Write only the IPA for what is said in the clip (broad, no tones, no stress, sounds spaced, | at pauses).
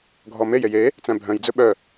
ɡʱ ɔ m e j e j e | t͡s æ̃ bʱ œ̃ j d͡z ɵ ɓ œ